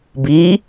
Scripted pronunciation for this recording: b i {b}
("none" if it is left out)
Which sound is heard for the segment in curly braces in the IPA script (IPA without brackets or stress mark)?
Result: none